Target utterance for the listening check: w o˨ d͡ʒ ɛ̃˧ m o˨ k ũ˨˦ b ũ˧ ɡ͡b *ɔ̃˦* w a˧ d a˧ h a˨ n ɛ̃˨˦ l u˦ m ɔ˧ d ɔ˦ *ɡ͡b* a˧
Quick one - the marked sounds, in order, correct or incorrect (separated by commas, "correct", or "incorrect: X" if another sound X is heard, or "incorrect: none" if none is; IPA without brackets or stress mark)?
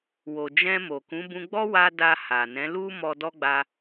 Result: incorrect: ɔ˦, correct